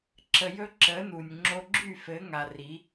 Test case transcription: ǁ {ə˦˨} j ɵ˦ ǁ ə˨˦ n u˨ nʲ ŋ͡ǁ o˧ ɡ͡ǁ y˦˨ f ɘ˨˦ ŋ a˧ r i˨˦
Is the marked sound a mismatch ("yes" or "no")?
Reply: yes